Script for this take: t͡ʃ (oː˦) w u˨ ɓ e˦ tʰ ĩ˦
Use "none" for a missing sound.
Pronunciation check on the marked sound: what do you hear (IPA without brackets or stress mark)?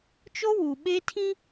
o˦